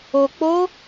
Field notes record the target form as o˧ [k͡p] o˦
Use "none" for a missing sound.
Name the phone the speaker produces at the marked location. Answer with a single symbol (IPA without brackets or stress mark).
k͡p